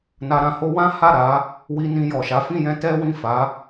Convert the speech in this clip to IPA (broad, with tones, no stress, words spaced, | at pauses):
na˧ɾã˧ho˦ wã˦ha˦˨ ɾa˨˦ | wi˧nĩ˧ jɔ˨ʃa˨˦ fĩ˦˨jɛ̃˧ tɛ˦wĩ˦˨fa˨˦